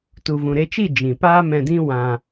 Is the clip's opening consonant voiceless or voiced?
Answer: voiceless